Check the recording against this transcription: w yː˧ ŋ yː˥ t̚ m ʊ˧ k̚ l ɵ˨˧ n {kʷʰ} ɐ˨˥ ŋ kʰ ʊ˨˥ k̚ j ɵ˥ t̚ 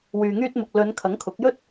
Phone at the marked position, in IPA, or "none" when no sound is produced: kʰ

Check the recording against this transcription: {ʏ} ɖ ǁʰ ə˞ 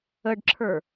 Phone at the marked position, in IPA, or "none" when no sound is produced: ə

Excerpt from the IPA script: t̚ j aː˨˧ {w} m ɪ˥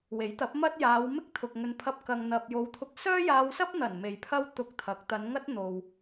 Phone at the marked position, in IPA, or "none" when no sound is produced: w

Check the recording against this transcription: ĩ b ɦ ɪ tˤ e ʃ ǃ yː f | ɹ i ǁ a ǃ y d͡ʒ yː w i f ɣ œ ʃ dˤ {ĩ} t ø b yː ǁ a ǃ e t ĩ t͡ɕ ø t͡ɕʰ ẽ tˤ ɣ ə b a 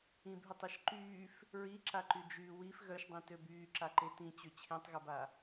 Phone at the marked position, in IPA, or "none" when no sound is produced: ĩ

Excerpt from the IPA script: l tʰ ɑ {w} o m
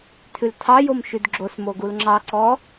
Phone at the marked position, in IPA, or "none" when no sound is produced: j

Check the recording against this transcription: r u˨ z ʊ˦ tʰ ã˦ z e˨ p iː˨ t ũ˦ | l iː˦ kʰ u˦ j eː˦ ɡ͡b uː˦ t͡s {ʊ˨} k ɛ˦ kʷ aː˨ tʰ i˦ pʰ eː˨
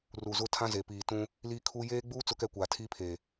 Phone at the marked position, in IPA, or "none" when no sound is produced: ʊ˦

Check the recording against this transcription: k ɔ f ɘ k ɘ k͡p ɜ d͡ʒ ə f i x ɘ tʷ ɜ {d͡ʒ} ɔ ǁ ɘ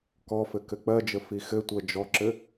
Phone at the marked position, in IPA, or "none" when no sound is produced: d͡ʒ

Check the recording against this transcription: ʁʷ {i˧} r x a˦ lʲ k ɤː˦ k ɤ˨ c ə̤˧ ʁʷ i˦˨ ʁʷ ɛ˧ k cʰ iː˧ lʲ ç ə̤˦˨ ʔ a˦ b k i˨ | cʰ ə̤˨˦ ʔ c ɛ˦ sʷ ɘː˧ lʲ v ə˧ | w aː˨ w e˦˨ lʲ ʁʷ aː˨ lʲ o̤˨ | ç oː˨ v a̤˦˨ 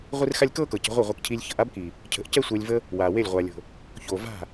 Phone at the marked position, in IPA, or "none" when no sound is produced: i˦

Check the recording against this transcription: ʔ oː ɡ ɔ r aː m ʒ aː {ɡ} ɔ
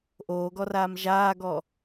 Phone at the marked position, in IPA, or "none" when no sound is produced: ɡ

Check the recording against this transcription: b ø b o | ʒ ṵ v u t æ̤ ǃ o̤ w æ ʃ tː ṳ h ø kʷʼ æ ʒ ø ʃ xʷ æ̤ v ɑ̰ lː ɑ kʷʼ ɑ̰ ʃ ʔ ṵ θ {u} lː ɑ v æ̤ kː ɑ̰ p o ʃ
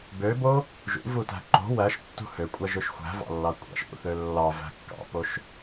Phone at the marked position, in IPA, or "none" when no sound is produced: ø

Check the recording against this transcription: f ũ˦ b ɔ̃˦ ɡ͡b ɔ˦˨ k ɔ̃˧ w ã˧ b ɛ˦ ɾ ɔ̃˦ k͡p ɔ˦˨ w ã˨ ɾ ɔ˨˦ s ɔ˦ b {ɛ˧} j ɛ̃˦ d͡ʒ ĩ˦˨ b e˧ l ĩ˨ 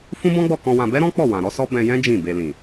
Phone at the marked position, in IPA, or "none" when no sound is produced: ɛ̃˧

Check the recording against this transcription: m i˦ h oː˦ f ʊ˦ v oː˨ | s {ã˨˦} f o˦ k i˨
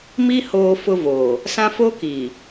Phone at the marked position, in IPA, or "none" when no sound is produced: ã˦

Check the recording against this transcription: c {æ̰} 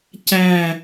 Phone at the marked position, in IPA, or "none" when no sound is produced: æ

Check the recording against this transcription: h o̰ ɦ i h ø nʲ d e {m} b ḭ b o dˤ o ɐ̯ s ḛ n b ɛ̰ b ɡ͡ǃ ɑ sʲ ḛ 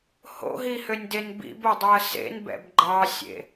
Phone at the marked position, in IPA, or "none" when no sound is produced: n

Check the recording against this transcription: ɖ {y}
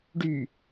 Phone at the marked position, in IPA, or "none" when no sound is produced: y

